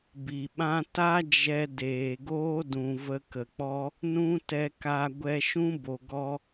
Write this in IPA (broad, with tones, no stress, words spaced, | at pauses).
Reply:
bi˨ɓã˦ ta˦ d͡ʒɛ˧ deː˨ɡoː˦dũ˨ və˧kə˨k͡pɔ˦ | nũ˦tɛ˧ka˧ ɡʷɛ˧ʃũ˦ bo˨ɡɔ˧